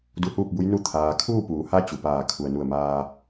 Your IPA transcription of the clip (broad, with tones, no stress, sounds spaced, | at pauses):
d u˧ h uː˥˨ p̚ b u˧˥ j n u˧˥ t̪ʰ aː˩ kʰ uː˥˨ p uː˩˧ h a˧˥ t͡ɕ u˩ p aː˧˩ kʰ u˩ ə̯ n u˧˩ ə̯ m aː˧